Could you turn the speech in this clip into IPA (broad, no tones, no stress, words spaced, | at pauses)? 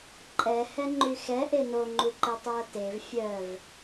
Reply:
ǃʼɛhɛŋ͡ǃy xɛʔe noŋ͡ǃuǃe tˤoɐ̯tev fʲœv